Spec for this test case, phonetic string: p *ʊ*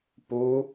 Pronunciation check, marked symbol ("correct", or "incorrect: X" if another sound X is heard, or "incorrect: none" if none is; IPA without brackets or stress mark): incorrect: u